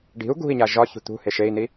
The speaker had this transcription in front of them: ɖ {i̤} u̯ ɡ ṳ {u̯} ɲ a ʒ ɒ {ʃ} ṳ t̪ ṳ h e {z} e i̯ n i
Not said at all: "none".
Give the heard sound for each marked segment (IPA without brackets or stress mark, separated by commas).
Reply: i̤, i̯, ç, ʃ